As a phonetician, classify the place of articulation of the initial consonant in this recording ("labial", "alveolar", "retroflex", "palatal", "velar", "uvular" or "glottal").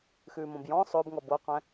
velar